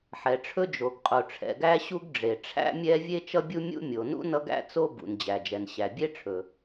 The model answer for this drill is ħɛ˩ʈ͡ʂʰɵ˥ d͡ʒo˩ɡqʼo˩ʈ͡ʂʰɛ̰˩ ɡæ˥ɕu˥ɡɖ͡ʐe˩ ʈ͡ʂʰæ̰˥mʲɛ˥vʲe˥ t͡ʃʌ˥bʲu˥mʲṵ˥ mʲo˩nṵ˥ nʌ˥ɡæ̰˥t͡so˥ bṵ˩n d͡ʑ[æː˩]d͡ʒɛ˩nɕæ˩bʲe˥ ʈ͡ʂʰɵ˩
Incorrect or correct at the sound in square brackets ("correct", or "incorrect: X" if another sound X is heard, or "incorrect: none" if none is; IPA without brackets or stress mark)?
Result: incorrect: æ˩